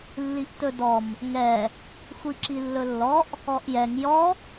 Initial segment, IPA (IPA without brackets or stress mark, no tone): lː